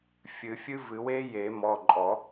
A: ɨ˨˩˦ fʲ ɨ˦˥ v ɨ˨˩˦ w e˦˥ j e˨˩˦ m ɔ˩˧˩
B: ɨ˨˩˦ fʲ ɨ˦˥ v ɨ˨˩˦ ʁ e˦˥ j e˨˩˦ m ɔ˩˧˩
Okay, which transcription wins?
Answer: A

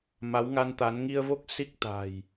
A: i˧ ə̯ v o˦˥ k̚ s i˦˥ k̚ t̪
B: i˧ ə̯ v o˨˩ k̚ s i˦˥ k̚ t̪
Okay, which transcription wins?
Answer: A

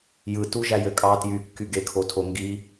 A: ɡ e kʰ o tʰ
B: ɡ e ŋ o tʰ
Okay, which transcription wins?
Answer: A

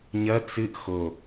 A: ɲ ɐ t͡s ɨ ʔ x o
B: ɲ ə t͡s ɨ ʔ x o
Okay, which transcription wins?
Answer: A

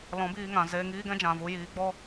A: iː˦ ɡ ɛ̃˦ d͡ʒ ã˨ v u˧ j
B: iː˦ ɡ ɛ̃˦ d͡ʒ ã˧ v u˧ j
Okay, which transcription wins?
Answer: A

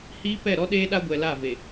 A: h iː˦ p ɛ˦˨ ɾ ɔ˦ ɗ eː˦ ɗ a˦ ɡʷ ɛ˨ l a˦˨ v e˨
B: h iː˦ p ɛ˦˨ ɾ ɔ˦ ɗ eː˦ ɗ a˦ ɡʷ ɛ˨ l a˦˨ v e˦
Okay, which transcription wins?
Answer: A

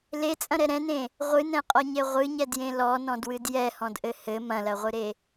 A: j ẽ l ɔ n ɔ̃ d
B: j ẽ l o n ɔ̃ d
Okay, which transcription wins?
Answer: A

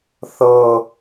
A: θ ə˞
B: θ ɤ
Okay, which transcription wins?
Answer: B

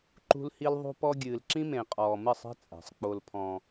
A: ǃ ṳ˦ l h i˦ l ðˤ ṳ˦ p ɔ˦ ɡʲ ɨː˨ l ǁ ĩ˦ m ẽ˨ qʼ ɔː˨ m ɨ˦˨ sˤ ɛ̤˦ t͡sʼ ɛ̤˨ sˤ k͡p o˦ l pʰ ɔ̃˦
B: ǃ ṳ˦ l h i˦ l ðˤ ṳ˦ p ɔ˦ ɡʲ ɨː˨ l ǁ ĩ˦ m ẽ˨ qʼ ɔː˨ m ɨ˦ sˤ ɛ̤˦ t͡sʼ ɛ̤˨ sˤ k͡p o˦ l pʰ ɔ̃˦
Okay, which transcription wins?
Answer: A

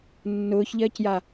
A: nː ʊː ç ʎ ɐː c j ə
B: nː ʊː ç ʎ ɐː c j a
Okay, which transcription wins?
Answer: B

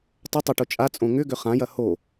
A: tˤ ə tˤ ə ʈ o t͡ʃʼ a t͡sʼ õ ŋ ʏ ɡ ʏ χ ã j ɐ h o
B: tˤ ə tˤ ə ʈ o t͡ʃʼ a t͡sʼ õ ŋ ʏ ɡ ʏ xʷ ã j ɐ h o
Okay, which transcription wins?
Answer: A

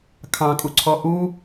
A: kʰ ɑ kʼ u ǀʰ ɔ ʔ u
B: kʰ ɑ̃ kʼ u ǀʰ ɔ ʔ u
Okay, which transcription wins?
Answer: B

